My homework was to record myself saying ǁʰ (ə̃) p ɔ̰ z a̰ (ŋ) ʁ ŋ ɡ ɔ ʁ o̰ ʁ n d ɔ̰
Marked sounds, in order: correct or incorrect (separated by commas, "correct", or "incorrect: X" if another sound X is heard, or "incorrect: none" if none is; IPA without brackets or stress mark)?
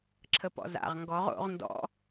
incorrect: ə, incorrect: none